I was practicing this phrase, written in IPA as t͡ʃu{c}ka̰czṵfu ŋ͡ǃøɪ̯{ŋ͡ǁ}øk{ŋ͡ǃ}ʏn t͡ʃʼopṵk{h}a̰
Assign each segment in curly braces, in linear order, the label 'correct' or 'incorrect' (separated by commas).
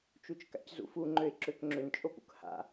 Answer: incorrect, incorrect, incorrect, correct